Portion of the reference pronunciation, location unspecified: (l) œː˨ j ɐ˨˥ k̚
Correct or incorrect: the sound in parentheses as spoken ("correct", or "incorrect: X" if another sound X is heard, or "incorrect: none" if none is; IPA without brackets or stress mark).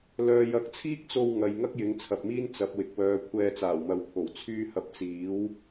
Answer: correct